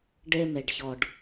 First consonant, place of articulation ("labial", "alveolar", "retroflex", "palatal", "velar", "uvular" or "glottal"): retroflex